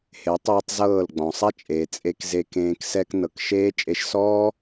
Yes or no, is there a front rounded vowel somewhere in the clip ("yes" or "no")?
no